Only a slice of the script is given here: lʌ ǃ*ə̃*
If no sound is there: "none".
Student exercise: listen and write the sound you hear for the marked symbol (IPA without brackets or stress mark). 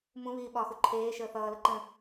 ə̃